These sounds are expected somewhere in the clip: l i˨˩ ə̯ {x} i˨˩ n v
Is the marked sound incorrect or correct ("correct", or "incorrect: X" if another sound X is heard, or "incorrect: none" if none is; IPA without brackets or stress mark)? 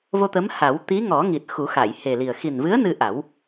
correct